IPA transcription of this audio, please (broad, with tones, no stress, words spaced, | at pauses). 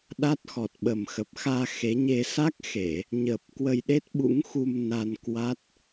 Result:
ɗa˦˥t̚xɔ˨˩t̚ ɓə˨˩mxə˨˩p̚xaː˧ xe˨˦ɲe˧ sa˦˥k̚xe˧˩˨ | ɲə˨˩p̚ kwə˧jɗe˦˥t̚ɓṵ˧˥ŋxu˧m na˧n kwa˦˥t̚